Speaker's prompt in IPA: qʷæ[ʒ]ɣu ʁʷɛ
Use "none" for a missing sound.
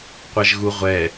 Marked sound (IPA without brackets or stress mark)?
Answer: ʒ